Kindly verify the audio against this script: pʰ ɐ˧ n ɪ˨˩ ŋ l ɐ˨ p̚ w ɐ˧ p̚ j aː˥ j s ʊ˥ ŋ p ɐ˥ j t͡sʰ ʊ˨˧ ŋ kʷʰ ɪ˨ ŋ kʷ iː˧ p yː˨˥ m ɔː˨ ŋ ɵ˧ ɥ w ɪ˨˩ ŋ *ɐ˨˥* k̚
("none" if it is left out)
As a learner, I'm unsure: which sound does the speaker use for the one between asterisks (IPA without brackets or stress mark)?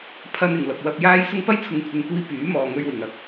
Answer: ɐ˨˥